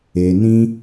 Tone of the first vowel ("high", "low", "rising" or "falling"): low